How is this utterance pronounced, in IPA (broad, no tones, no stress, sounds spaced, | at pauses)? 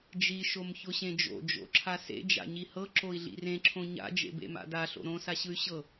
d͡ʒ i ʃ o m ç ʊ ɕ ẽ d͡ʒ o̰ d͡ʒ o̰ ǁʰ a s ḛ d͡ʒ a̰ ɲ i h ɤ ǁ o i̯ ɮ ḭ r ẽ ǁʰ õ ɲ a̰ d͡ʒ ḛ b ḛ m a̰ d a ɬ o̰ ɾ õ s a ɕ ɯ y̯ ɕ ɤ